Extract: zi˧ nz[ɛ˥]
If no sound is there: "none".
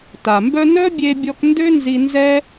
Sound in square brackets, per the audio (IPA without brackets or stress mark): ɛ˥